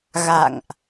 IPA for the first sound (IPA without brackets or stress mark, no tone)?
ɣ